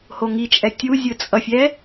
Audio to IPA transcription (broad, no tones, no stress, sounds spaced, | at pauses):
h o ŋ i t͡ʃʼ ɛ tʲ u zʲ ɯ t͡sʼ ʌ fʲ ɛ